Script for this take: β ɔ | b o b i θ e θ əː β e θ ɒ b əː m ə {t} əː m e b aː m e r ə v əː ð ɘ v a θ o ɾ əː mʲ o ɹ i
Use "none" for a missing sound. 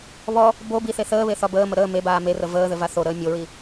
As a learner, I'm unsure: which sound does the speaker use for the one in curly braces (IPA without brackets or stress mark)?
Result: ɾ